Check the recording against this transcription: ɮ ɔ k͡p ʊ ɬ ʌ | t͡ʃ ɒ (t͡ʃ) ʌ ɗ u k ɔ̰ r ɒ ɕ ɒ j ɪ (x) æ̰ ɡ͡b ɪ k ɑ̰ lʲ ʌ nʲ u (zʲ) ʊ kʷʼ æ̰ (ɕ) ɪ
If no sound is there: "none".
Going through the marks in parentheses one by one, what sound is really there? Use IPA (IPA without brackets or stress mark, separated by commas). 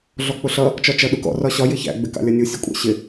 t͡ʃ, ç, sʲ, ɕ